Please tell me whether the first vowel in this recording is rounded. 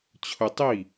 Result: yes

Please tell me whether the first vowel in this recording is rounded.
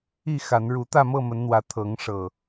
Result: no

